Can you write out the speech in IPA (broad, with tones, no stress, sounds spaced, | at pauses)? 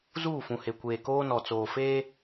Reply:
z uː˦˨ f ũ˨ h e˨ kʷ eː˨ k oː˦ n ɔ˨ t͡s oː˨ f eː˦